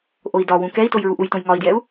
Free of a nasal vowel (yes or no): no